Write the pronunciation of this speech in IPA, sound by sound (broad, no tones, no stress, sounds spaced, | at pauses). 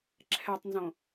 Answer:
ǁʰ ɛ tˤ n z õ